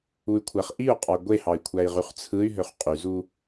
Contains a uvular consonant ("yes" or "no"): yes